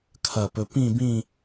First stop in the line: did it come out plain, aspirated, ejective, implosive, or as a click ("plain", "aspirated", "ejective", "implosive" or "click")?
aspirated